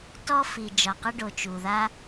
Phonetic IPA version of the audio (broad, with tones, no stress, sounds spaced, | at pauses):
t ɔ˥ f i˩ d͡ʒ ɒ˩ q ə˥ ɖ o˩ t͡ʃ u˩ ð a˥